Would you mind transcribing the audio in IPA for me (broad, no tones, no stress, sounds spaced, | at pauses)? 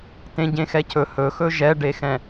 t ẽ ɟ ẽ x ɛ cʰ ɵ h ɵ x ɵ ʒ ɛ ɖ e x ɛ̃